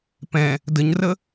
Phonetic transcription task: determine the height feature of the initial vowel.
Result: mid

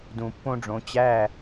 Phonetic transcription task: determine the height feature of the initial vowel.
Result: high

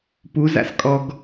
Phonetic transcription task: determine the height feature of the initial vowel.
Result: high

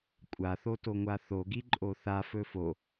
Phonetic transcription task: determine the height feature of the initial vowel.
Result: low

